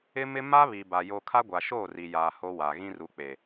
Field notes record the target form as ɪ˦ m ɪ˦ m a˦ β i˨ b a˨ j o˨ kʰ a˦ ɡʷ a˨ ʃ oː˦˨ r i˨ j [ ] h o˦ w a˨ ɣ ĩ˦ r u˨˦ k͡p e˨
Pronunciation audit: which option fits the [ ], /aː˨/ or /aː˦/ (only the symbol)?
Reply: aː˨